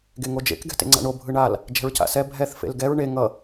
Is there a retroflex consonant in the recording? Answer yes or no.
yes